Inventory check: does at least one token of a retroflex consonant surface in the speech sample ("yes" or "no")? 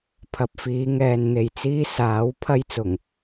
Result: no